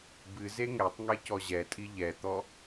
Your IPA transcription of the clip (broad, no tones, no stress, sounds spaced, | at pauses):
b ɨ z e ŋ ɛ tˤ ŋ e c ɔ ʑ ɛ tʼ i ʎ ɛ t̪ ɔ